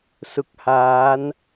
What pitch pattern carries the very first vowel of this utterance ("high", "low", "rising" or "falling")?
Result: low